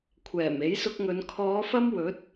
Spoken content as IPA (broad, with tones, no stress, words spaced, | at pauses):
kʷʰɛː˨˩m e˨˥jsʊ˧k̚ŋɵ˨˧n kʰɔː˨˧ fɐ˥mwɵ˨˥t̚